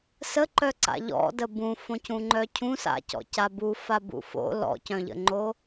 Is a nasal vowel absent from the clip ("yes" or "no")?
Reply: no